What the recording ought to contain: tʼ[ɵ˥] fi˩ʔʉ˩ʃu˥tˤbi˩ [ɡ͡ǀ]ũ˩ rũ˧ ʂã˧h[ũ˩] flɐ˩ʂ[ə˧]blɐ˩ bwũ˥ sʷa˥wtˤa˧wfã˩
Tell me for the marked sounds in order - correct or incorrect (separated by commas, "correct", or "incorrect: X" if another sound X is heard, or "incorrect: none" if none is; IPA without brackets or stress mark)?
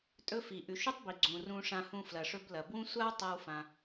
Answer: incorrect: ɵ˧, correct, incorrect: ũ˧, incorrect: ɵ˧